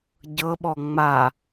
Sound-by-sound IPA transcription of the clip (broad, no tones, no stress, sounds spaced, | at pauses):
ɟ ɤ ɓ ɔ ŋ͡m a